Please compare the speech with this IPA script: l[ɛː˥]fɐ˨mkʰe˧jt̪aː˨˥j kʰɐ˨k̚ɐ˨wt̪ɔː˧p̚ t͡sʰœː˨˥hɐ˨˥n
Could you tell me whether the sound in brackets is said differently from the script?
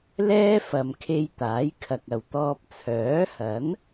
no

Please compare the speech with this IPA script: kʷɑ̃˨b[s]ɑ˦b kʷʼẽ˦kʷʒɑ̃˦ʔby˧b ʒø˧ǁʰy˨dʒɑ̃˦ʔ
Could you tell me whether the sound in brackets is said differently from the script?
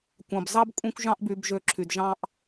yes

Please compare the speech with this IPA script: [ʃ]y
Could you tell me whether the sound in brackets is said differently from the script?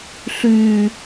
yes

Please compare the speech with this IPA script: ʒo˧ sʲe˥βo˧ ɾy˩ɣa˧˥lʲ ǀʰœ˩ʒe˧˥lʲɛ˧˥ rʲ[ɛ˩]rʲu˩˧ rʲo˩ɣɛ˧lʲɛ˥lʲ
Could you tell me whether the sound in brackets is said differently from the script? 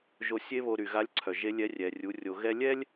no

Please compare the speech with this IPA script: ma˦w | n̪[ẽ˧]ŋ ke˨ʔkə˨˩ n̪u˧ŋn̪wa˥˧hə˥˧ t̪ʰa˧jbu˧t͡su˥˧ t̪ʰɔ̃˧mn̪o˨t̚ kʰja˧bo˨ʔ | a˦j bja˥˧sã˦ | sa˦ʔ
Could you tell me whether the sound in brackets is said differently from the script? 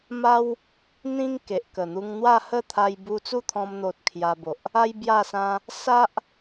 yes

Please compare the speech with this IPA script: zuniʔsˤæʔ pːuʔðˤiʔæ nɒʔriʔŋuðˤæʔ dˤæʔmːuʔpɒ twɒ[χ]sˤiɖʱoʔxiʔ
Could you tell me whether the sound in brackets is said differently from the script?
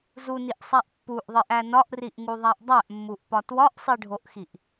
yes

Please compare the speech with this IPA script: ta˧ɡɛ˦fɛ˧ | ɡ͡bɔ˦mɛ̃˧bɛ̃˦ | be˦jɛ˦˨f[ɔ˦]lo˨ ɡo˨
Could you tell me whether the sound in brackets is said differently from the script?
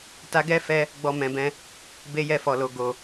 yes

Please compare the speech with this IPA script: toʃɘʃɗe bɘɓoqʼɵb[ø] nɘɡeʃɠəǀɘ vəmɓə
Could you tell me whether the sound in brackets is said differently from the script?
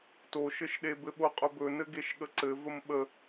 yes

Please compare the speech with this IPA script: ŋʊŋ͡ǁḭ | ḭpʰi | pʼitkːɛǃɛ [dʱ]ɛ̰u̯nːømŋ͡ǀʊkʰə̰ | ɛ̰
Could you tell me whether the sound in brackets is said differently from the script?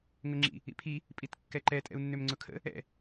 yes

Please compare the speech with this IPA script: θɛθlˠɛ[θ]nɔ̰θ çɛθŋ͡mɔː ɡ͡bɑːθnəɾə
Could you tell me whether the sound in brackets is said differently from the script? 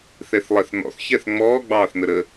no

